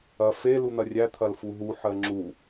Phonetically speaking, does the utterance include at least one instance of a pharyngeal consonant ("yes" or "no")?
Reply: yes